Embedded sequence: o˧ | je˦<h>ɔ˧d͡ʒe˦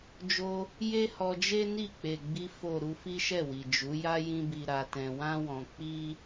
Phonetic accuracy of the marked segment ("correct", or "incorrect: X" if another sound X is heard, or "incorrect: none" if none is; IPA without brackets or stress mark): correct